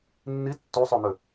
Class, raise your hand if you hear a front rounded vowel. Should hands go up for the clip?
yes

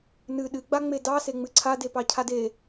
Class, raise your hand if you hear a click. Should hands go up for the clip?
yes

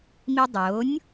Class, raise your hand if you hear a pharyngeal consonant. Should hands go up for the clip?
no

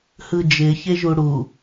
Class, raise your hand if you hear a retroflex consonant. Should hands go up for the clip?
yes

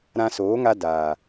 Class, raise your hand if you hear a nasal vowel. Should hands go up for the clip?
yes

